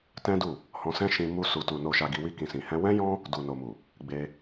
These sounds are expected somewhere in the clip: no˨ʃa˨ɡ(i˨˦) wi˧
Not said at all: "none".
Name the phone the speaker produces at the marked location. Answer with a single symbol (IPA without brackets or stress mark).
i˨